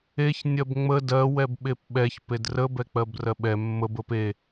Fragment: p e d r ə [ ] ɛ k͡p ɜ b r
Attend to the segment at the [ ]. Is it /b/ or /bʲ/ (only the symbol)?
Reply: b